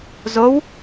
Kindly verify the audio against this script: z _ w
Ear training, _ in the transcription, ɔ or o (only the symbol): o